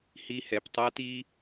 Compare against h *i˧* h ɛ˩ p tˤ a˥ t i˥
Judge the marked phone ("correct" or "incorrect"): correct